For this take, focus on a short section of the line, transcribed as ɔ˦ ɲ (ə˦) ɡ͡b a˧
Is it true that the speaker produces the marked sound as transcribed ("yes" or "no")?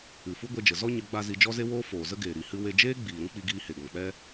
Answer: no